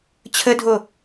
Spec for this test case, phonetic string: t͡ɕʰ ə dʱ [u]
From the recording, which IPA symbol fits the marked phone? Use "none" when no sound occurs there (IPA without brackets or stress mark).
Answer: o